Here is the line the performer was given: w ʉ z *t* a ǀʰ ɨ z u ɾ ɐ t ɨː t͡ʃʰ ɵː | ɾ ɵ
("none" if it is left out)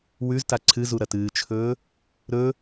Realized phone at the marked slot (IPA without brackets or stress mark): t